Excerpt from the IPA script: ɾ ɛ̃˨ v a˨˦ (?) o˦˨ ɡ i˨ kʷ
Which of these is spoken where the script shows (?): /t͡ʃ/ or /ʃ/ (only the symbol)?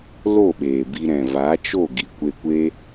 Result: t͡ʃ